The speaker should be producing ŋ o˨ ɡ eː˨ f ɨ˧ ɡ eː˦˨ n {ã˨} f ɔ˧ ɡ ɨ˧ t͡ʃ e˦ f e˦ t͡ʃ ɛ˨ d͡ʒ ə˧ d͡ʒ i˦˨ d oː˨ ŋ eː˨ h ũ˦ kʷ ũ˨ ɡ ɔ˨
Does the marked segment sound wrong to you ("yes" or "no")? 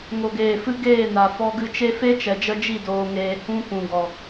yes